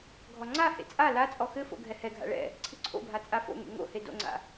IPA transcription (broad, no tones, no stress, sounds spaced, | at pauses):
ɡʱ ɔ ŋ͡ǀ a h ḛ t͡sʼ a l a t͡sʼ ɔ x ɘ f o̰ ɡʱ ɛ h ɛ ɡʱ a̰ ɭ ɛ̰ | ǀʰ ɨ ǀʰ o̰ bʱ a t͡sʼ a f o̰ ŋ ḛ ŋ o̰ h e d o̰ ŋ͡ǀ a̰